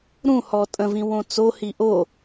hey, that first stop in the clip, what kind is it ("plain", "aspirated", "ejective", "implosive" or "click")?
ejective